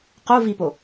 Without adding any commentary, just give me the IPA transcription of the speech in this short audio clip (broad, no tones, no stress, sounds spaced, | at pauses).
q o v i p o